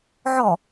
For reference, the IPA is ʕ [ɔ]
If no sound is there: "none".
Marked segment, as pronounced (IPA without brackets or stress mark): ɔ